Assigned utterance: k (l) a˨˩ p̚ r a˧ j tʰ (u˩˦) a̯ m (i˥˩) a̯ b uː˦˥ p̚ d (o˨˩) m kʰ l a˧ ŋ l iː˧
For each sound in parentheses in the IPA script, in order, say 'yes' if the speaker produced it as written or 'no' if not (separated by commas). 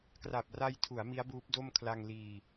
no, yes, no, no